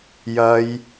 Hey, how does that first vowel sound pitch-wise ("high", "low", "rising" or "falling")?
high